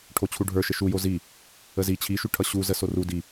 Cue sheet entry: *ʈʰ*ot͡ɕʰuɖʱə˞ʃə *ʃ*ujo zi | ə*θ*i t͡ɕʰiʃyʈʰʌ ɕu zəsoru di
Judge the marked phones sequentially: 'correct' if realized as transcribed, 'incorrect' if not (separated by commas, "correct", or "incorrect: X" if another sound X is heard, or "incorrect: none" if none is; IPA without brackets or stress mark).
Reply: correct, correct, incorrect: z